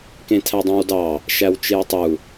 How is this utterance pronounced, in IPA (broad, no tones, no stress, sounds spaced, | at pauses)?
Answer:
k ẽ tʰ æ dˤ õ w d ɑ | ʃ æ w t͡ʃ e w tˤ u